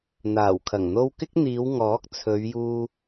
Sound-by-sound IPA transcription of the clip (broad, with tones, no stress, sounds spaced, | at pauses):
n̪ aː˨˩ w kʰ ɐ˨˩ ŋ n̪ o˥ w k ɪ˥ k̚ n̪ iː˨˧ w ŋ ɔː˨˥ k̚ t͡sʰ ɵ˨˧ ɥ j uː˧